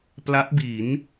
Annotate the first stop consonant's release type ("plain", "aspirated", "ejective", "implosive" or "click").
plain